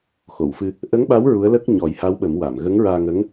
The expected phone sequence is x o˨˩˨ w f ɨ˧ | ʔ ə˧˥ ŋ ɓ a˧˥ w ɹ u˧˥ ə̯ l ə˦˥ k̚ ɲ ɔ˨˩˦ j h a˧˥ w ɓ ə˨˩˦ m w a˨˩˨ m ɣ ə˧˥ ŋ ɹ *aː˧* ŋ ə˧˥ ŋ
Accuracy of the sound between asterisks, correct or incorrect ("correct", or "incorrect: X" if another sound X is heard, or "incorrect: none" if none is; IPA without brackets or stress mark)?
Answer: correct